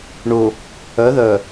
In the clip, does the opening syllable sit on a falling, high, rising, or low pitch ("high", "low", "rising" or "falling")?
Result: low